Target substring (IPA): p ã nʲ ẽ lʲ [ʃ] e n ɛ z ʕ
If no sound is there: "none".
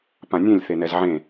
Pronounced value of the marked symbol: θ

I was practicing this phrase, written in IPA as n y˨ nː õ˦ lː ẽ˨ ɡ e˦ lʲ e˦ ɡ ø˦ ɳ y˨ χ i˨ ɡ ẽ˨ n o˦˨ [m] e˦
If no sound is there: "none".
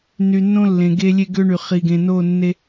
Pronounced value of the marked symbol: nː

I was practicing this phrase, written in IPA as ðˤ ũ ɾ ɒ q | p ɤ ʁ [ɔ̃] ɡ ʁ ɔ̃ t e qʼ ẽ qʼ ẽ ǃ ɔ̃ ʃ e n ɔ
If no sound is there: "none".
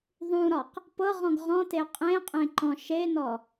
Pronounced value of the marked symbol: ɔ̃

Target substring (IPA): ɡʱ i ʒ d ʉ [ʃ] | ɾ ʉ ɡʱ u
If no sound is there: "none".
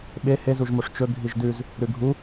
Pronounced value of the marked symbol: z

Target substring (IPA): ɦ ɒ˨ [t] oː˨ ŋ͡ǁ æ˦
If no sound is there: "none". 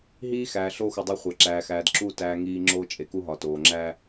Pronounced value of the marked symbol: t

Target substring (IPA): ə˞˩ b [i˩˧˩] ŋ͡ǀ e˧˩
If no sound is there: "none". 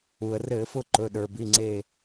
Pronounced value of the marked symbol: i˩˧˩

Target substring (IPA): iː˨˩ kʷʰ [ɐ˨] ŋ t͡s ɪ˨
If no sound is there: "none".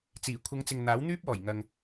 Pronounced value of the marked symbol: ɐ˨˧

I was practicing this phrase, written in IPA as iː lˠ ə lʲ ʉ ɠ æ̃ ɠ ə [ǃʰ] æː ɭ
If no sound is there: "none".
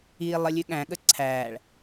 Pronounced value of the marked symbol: ǀʰ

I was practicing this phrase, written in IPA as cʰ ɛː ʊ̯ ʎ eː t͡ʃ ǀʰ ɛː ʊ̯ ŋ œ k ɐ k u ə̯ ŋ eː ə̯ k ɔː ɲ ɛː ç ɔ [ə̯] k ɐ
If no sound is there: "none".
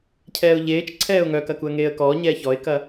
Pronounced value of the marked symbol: ɪ̯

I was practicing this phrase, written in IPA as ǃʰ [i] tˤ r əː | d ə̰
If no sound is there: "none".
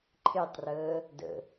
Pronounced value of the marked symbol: e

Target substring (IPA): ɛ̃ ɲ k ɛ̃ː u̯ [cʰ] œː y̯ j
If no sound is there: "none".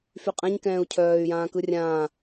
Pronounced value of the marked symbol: cʰ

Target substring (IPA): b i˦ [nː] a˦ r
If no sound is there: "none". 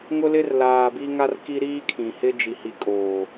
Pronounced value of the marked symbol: ŋ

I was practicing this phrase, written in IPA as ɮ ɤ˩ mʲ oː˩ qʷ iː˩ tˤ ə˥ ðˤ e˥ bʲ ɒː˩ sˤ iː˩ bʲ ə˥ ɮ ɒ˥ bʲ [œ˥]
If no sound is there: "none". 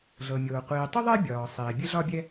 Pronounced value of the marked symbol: ɛ˥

